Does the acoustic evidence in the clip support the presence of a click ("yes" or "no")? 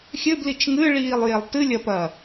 no